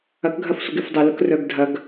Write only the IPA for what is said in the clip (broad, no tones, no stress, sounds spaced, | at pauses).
ɐ k ɡʱ ɐ f sʷ ə ɡ ɪ f dˤ ʊ l ʊ k r œ ɡ dʱ ɐ ɡ